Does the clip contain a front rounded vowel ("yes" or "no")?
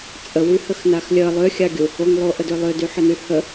yes